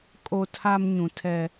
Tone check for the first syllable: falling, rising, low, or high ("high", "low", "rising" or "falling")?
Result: high